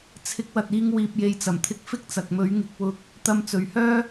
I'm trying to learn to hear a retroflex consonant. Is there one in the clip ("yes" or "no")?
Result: no